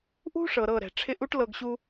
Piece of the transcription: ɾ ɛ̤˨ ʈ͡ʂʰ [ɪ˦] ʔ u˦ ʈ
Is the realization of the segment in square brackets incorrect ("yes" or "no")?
no